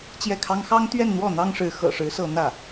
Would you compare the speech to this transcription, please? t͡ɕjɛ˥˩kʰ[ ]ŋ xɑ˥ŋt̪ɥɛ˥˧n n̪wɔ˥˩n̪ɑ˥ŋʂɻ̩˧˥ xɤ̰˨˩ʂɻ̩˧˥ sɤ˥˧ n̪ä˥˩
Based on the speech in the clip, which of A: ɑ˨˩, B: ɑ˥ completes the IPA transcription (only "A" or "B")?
B